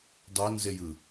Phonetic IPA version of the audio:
dˤ o n z e j ɯ

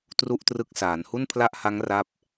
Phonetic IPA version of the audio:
t r u˥˩ ʔ t r ɯ˦˥ k̚ s aː˩˦ n h u˥˩ n pʰ l a˥˩ ʔ h a˦˥ ŋ r a˥˩ p̚

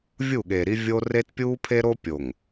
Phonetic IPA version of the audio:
vʲ u˦˨ ɠ e˨ ɾ i˦ vʲ o˦ r e˦ t pʲ uː˦ pʰ e˦ ɾ o˦ pʲ o˨ ŋ

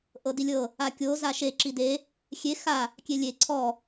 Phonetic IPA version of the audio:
ʔ ɤ d i lʲ ɤ | a kʲ o z a ʃ e ǁ i d e | xʲ e x a | kʲ e lʲ e ǀʰ ɔ

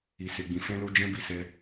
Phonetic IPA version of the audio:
i˨ s e˨ ɡ͡b ĩ˨ f ɛ̃˧ l o˧ d͡ʒ ɛ̃˦ b i˦˨ s ɛ˧

